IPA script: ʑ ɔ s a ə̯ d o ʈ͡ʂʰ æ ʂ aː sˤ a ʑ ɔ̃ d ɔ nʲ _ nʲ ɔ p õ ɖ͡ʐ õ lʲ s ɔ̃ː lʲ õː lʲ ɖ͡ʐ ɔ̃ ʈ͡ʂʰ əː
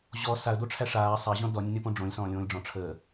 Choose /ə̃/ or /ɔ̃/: ə̃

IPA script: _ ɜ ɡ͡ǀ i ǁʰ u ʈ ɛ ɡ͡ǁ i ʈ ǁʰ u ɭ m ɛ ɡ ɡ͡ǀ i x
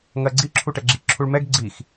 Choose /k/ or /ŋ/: ŋ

